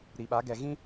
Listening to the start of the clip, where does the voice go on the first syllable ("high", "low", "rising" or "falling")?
low